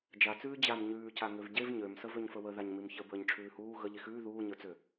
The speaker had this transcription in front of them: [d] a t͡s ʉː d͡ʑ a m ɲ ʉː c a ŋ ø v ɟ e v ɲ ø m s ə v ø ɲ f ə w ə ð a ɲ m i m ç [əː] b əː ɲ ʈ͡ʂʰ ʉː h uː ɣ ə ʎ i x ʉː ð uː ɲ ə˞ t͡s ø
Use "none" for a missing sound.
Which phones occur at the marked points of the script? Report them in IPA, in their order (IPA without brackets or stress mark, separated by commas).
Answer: d͡ʒ, ə